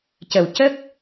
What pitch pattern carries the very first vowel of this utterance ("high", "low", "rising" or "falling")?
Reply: low